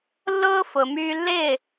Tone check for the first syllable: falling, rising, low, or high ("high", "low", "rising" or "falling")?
high